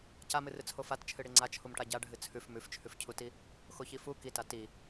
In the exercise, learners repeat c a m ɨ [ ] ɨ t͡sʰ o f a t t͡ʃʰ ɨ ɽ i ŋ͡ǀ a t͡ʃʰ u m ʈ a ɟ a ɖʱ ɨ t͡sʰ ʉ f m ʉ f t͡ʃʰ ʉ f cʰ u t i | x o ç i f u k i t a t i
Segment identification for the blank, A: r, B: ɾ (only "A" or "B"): A